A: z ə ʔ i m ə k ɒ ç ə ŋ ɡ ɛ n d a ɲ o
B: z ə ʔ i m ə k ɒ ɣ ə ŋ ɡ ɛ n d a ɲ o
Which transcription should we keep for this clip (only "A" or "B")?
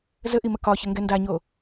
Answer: A